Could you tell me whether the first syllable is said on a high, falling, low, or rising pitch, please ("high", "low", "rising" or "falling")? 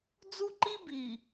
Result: high